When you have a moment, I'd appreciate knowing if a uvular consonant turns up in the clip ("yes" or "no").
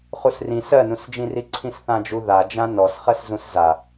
yes